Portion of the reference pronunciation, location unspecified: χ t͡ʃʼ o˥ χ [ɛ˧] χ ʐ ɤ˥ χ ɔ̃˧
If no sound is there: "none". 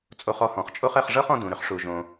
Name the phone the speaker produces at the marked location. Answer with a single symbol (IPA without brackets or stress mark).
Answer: ɛ˧